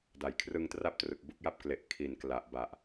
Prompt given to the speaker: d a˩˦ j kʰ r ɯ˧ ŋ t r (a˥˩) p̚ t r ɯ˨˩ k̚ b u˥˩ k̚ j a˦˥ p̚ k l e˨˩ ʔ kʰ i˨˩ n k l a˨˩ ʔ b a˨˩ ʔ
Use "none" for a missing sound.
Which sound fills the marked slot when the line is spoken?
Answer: a˥˩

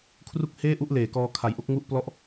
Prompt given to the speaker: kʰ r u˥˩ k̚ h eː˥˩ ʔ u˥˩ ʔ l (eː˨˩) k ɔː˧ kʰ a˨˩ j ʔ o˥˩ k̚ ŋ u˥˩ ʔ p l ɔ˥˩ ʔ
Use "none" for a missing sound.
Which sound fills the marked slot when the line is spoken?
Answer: eː˨˩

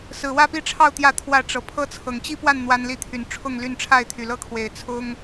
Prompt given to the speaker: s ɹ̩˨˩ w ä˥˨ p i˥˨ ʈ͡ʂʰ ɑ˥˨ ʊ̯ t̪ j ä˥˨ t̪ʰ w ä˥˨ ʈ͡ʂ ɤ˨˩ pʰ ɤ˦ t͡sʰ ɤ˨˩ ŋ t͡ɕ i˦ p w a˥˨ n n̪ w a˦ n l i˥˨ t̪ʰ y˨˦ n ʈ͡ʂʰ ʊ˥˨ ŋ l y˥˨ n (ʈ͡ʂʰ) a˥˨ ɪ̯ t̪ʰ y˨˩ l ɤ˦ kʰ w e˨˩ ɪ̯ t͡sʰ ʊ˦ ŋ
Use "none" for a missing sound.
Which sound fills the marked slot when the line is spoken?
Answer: ʈ͡ʂʰ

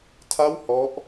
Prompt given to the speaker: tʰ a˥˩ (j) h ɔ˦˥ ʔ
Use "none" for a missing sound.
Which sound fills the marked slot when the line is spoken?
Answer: w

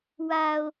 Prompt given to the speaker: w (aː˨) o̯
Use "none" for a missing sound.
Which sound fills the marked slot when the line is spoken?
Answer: aː˨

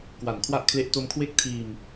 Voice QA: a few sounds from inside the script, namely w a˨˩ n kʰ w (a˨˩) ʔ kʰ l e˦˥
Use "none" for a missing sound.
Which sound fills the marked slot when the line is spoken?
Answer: a˥˩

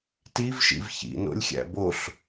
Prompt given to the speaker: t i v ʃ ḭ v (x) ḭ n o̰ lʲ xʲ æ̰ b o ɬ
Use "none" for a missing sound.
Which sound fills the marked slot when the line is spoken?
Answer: ç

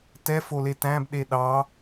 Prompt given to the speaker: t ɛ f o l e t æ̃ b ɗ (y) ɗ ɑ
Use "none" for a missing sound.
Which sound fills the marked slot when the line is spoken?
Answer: e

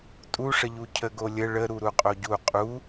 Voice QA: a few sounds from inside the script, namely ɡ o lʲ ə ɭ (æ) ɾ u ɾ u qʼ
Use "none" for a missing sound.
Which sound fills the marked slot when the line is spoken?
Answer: ə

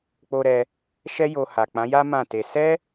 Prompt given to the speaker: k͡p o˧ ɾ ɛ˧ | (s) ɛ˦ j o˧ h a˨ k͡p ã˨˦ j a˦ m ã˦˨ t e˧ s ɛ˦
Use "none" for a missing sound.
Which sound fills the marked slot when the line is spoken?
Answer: ʃ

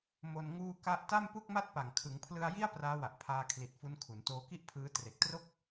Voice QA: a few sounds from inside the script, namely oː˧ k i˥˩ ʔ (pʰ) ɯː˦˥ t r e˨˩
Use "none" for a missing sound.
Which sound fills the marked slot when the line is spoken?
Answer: pʰ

